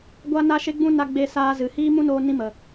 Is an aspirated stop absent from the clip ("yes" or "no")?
yes